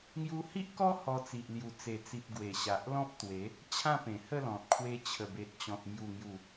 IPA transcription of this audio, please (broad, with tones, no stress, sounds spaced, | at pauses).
ŋ j u˧ h i˦ ʔ k ɔ˦ h ɔ˧ t͡s i˨ ʔ l j u˨˩ t͡s e˨˩ t͡s i˨ p̚ ɡ w e˨˩ ɕ a˨ ʔ l ɔ̃˦ p̚ t̪ w e˨˦ | t͡ɕʰ ã˦ p ẽ˨˩ h ə˥˧ l ɔ̃˨ t̚ kʰ w e˧ t͡ɕʰ ə˨˩ b e˨ t̚ t͡ɕ ɔ̃˨ t̚ m j u˨˩ ŋ j u˨˩